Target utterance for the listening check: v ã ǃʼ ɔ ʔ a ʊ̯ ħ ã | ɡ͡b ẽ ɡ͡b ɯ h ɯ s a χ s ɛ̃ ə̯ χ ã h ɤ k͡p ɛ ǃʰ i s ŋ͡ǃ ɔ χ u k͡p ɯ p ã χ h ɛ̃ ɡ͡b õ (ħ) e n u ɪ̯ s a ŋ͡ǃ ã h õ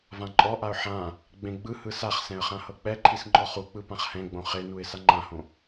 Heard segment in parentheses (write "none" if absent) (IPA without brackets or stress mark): χ